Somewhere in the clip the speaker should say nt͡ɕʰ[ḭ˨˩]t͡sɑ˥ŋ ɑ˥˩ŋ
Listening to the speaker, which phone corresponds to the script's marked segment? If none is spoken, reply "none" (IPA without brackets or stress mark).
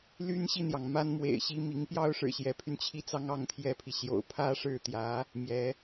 i˥˩